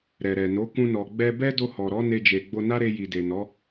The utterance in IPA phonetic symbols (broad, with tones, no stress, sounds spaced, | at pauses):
ɾ ɛ˨ ɾ ɛ˨ n o˨˦ k ũ˧ n ɔ˨ ɡ͡b ɛ˧ b ɛ˦ d o˧ h ɔ˨ ɾ ɔ˨˦ n e˧ d͡ʒ e˨ ɡ͡b o˧ n a˦ ɾ e˧ j i˨ d e˨ n ɔ˨˦